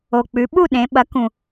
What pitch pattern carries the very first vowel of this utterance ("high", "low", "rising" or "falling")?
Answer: low